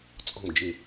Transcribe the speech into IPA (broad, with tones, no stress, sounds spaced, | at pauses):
t͡sʼ ɔ̤˧˩ m d͡ʒ ɪ˧˩